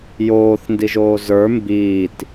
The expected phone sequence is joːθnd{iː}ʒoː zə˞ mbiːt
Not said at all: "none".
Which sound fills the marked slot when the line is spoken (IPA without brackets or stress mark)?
i